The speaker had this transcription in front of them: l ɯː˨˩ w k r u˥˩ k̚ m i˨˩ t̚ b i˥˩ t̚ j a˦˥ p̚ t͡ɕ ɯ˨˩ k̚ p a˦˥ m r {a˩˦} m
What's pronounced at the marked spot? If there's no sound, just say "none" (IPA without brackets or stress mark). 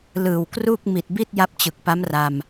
a˧